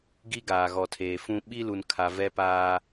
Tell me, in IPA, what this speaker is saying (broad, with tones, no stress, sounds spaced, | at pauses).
ɡ i˦ ɡ aː˨ ɣ ɔ˨ tʰ eː˨ f ũ˦ ɓ i˦ l u˨ n kʰ a˨ v ɛ˦ p aː˦